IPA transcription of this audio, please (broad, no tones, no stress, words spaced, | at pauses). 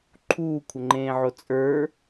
ǃʰuːkʷʰəŋ͡ǃẽːʕo t͡sʼə˞